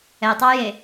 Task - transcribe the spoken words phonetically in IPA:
ɛ tˤ ɑ j e

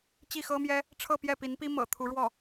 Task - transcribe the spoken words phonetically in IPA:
t͡ɕ i˥˩ x ɤ˥ m j ɛ˥ | ʈ͡ʂʰ ɤ˥˧ p j ɛ˥˩ p i˧˥ n p i˥ m ɤ̰˨˩ t̪ʰ u˧˥ ɻ w ɔ˥˩

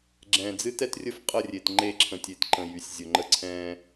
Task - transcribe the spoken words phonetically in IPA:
ɡ͡ǁ ɛ̃ː˨ d͡z ɨ˦ t ɛ˦ t rʲ ə˦ f qʼ ə˦˨ rʲ e˨ t ŋ͡ǃ e˦˨ ǁʰ ə̃˨ tʲ e˨ t ǃ ə̃˨ j y˨ sʲ zʲ ʊ˨ ŋ͡ǃ ə˦ ǀʰ ɛ̃ː˦

